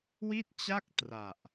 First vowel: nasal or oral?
oral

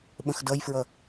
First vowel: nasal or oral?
nasal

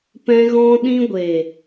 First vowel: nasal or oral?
nasal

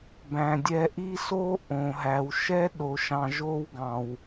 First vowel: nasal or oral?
nasal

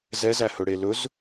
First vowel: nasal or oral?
oral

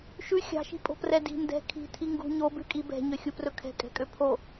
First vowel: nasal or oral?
oral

